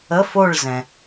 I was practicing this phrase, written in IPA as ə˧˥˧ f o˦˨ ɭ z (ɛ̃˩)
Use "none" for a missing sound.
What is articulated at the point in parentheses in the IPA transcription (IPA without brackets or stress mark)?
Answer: ɛ̃˩